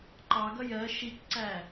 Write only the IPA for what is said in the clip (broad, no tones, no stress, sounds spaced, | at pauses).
ǃ ɑ ɡ ʌ j ɜ ʃ i k ǀ æ